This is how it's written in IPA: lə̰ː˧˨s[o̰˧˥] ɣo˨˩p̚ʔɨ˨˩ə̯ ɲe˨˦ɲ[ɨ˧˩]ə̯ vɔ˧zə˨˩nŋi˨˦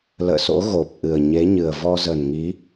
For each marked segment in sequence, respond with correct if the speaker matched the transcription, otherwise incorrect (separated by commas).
correct, incorrect